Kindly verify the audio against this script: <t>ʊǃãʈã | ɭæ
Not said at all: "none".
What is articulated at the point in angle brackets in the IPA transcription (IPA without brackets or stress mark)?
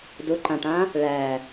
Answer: d